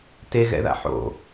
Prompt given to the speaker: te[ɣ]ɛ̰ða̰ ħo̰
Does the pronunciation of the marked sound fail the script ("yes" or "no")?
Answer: no